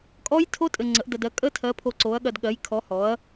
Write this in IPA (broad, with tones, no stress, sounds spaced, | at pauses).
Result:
kʼ ɔ˦˥ j tʰ o˦˥ tʼ ɘ˧ ŋ͡ǀ ə˨˥ ʔ d ɐ˧ d ɜ˨˥ kʼ ə˦˥ tʰ ɜ˨˥ pʰ o˧ ǀ o˨˥ ɐ̯ ɠ ɐ˧ d ɠ ɜ˨˥ j kʰ ɔ˨˥ h ɔ˨˥ ɐ̯